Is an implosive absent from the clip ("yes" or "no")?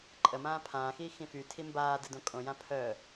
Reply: yes